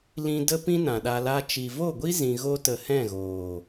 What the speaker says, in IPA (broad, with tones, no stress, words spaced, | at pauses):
lĩ˧ də˦pĩ˦ nã˨ɗa˧la˦ t͡ʃi˨vo˦˨ɡʷi˦ zĩ˧ɣo˦tə˧ hɛ̃˦˨ɣoː˨